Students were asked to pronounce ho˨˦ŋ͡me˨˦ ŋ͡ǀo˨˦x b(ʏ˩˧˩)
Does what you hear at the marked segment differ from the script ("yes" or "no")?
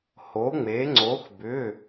no